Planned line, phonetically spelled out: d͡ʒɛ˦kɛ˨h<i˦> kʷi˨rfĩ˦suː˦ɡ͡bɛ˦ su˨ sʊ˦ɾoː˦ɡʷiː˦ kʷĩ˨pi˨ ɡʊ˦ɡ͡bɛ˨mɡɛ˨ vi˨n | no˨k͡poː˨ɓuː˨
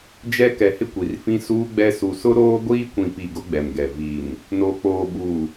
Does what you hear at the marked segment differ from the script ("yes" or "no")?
yes